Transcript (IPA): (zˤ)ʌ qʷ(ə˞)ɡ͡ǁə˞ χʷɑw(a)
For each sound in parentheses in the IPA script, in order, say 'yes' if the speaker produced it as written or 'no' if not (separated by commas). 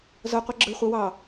no, no, no